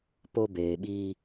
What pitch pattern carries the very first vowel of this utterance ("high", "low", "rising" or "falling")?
high